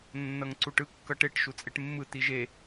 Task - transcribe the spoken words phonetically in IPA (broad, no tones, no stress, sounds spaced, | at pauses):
nː ʌ ŋ ǀ u ʈ ɯ kː ʌ ʈ e ʈ ʃ u t͡sʼ e ʈ mː ɯ t i ʒ e